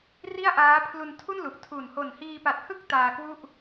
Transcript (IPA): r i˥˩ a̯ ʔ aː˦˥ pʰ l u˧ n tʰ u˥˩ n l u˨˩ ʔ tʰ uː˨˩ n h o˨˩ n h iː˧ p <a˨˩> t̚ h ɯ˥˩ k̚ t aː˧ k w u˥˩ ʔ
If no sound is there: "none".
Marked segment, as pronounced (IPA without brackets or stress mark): a˨˩